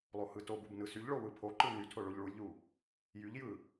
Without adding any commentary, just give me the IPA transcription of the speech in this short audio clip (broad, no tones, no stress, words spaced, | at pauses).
lˠohɯtobub nɯsyʎɭo wɯpʰoǃɯ nytʰo ɭoʎɭulʲʎu | jyʎjɯ